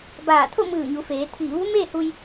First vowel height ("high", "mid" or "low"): low